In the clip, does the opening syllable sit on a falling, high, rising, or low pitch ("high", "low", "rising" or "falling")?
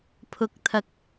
low